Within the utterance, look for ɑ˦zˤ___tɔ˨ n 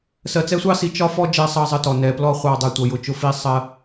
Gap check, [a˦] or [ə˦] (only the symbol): ə˦